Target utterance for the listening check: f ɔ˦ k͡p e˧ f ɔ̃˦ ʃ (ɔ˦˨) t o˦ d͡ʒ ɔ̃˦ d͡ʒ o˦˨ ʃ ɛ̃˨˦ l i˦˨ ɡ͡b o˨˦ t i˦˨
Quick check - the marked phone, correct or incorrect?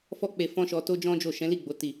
incorrect